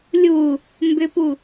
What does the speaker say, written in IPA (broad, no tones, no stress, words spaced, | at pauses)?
lʲu | mbʏpu